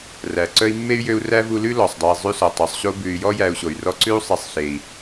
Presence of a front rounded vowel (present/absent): present